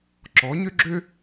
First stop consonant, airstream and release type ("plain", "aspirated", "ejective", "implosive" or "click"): click